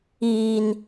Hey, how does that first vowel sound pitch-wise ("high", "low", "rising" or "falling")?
high